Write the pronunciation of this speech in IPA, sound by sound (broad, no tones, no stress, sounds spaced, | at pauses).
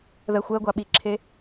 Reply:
ð ɜ xʷ ɜ ɡʷ ɑ ɓ i ǁʰ e